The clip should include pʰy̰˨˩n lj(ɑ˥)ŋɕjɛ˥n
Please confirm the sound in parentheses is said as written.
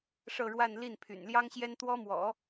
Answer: yes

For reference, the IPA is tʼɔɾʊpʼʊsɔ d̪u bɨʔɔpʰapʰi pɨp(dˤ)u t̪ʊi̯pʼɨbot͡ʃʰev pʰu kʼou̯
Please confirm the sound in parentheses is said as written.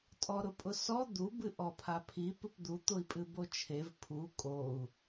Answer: no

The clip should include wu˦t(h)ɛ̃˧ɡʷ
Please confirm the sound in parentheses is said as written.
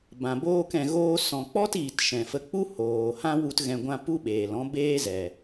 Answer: no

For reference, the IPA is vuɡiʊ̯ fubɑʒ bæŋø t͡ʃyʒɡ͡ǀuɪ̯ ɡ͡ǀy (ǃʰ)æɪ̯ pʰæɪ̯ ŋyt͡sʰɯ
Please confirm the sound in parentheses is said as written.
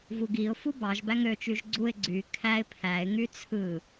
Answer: no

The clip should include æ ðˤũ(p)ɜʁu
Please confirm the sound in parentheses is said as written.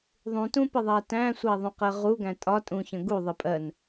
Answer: no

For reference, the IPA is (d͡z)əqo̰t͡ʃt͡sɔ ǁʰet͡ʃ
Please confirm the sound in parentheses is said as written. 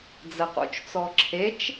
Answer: yes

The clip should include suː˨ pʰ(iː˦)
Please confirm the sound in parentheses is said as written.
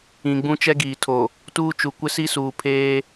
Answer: no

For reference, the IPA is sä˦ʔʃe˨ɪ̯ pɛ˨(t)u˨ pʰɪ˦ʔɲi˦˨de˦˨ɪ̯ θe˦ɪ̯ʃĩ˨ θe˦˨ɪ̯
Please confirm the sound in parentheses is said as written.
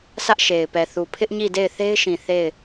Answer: no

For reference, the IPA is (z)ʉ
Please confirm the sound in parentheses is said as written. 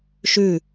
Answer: no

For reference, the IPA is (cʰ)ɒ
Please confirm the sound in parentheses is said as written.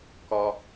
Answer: no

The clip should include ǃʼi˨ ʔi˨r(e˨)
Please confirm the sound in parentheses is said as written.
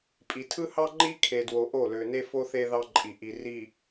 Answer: no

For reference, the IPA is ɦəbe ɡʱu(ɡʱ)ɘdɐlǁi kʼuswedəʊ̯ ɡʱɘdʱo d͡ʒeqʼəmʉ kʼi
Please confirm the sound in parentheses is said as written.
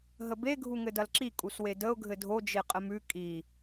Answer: no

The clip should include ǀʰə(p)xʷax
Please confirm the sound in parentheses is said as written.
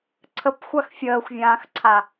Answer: yes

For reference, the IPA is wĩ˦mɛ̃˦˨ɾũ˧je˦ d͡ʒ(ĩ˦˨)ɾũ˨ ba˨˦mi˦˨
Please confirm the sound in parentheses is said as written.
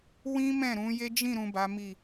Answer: yes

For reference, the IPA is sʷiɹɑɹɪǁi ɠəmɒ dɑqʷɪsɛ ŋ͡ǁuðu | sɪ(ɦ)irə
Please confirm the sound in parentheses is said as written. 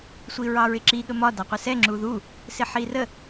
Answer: no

